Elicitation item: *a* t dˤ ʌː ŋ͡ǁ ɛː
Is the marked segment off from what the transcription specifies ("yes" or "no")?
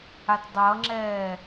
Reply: no